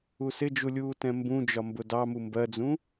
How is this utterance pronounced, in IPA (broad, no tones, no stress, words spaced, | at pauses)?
usɪd͡ʒu lʲuːtɛ̃mbũd͡ʒɒ mbʊdɑmu mbɜd͡zũ